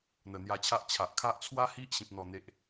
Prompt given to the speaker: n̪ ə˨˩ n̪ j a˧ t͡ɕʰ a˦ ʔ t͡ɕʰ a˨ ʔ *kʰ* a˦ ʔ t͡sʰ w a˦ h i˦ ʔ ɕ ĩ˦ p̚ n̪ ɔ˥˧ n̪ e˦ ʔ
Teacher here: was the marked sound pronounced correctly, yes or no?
yes